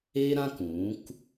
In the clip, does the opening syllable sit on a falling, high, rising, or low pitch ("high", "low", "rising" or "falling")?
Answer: high